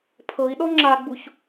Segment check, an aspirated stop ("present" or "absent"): present